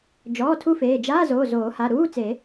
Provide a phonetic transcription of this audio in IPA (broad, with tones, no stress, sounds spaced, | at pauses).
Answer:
d͡ʒ ɔː˩˧˩ tʰ u˥˧ f eː˩˧˩ d͡ʒ aː˧˥˧ z oː˩˧˩ z oː˨˩˦ h a˩˧˩ ɾ uː˧˥˧ t͡s e˨˩˦